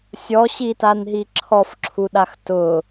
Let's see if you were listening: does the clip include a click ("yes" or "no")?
yes